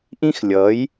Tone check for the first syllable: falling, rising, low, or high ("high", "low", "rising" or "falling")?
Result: high